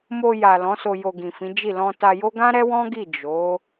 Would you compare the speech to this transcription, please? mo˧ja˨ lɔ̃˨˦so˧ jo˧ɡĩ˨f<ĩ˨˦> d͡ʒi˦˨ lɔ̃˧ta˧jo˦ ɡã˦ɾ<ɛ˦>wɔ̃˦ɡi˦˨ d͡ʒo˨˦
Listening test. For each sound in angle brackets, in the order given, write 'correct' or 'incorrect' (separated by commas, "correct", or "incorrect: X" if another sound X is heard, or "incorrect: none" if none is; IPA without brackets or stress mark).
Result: correct, correct